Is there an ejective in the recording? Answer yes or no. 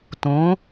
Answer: no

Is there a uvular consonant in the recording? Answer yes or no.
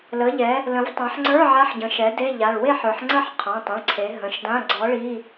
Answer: yes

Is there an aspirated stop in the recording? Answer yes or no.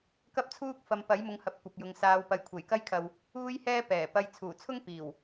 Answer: yes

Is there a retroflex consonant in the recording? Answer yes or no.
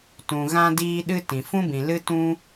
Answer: no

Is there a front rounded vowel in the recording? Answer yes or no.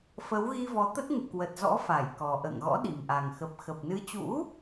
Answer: no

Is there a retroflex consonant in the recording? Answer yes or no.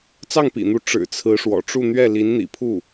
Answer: yes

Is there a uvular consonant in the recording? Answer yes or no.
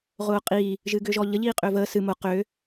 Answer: yes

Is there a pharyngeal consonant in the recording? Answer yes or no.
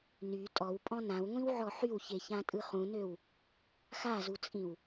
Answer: yes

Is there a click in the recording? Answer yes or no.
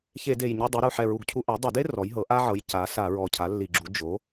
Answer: yes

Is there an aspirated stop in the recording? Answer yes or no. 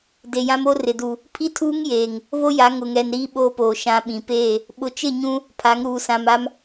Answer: yes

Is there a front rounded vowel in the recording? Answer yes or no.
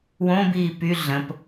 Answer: yes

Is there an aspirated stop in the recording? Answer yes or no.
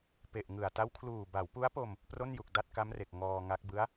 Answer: yes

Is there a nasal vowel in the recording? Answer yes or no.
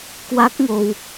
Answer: no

